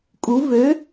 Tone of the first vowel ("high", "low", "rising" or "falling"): rising